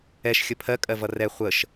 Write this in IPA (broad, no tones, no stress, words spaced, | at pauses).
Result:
ɛʃ xʲəpʰɜ kʼɜvʌrɛ χʷəʃ